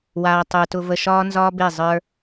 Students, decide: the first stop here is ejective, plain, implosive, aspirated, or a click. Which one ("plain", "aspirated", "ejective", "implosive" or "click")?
plain